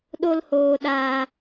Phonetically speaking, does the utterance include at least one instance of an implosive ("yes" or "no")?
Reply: yes